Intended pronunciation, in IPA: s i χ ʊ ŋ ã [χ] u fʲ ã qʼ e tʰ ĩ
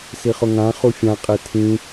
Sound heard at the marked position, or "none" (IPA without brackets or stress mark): χ